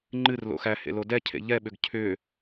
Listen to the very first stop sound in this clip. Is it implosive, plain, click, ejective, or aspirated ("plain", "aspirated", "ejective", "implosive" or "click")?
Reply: click